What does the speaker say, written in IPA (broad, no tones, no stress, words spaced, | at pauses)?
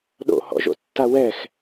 ɗo̰hɔ̰ ʒo̰tːawɛx